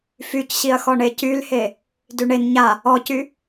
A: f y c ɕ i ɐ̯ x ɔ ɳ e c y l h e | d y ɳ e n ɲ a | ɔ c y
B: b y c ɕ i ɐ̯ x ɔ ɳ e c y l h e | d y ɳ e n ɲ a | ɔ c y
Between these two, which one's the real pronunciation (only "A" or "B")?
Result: A